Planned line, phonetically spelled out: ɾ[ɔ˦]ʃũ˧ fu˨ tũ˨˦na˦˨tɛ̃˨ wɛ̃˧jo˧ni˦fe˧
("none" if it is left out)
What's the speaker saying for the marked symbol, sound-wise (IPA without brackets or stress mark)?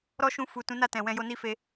ɔ˦